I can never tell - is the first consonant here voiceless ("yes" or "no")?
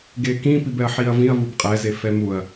no